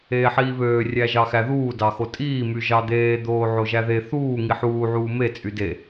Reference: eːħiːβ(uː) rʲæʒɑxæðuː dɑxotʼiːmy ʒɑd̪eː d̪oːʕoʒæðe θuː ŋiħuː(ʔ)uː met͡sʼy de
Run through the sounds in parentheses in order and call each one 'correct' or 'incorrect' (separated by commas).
incorrect, incorrect